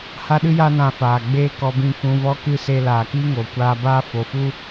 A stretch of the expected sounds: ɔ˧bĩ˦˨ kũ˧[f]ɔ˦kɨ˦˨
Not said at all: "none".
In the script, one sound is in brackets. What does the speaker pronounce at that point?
v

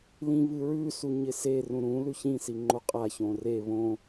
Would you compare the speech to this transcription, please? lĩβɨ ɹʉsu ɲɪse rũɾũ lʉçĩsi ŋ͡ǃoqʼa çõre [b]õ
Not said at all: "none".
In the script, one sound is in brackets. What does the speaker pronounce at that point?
β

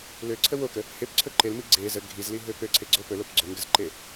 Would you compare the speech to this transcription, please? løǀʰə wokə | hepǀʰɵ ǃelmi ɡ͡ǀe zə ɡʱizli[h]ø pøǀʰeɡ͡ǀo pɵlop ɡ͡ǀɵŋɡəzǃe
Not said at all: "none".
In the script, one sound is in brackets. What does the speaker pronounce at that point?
ɦ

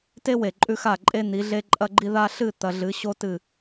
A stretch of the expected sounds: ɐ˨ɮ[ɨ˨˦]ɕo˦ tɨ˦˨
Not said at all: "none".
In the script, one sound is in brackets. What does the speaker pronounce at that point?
ɨ˨˦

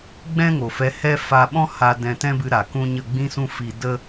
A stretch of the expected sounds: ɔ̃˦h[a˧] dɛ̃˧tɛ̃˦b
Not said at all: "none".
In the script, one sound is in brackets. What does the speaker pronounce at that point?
a˧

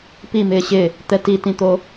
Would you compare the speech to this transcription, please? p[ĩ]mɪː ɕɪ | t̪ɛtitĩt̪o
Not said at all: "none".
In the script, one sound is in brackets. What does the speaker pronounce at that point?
i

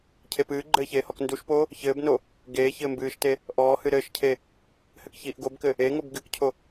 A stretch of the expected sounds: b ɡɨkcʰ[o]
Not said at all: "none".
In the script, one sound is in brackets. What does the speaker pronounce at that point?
o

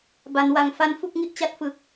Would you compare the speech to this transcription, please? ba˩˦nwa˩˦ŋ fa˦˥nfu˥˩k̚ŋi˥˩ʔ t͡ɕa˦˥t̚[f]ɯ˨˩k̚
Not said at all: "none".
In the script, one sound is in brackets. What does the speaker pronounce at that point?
f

